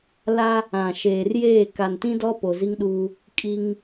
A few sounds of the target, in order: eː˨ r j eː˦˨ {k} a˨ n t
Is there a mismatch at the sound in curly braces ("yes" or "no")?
no